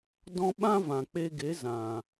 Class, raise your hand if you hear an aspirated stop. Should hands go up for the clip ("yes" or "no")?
no